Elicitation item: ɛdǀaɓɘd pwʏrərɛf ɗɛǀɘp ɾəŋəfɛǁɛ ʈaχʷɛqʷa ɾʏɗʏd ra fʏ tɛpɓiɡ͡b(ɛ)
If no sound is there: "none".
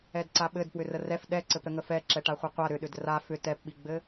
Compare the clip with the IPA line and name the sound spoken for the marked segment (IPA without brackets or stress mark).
ɘ